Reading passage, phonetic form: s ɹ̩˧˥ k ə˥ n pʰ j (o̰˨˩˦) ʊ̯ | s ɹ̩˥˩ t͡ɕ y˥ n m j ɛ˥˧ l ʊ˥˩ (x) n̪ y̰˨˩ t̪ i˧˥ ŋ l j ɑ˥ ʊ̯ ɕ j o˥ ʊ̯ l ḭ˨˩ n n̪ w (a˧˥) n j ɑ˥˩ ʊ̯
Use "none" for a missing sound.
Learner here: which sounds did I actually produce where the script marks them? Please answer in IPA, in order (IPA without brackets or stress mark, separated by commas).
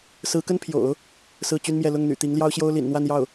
o̰˨˩˦, ŋ, a˥˧